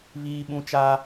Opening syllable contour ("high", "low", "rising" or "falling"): high